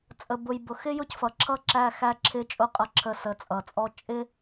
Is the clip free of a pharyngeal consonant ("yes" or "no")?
yes